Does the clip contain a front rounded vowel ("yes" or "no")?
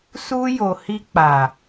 no